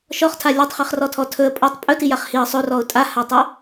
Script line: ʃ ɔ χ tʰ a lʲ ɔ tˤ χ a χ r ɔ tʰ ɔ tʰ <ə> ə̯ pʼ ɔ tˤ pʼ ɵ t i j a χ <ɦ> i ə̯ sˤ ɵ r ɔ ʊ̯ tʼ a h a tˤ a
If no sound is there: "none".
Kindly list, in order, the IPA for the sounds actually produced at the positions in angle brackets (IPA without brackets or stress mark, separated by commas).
ɵ, h